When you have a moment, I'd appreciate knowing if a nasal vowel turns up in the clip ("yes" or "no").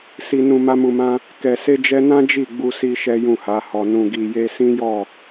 yes